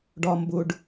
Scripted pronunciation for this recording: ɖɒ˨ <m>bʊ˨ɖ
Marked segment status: correct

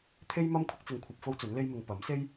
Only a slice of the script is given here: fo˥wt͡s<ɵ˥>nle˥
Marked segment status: incorrect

